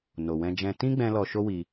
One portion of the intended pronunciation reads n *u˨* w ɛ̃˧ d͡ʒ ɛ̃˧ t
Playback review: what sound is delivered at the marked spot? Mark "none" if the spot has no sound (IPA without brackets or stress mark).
o˨